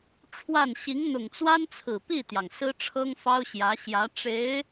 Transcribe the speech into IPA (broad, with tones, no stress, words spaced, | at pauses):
ʈ͡ʂʰwa˥˩n ɕi˧˥ŋn̪ʊ˨˩ŋ t͡swa˥nt͡sʰɹ̩˨˩pi˥˩t̪jɑ˩ŋ sɹ̩˥ʈ͡ʂʰɤ˥ŋfɑ˥ʊ̯ɕjä˧˥ ɕjä˧˥ ʈ͡ʂe˧˥ɪ̯